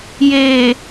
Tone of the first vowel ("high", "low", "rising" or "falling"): low